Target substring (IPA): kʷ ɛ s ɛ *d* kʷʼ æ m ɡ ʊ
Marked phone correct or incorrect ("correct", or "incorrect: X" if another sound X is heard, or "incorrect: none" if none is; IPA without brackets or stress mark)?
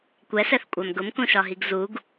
incorrect: θ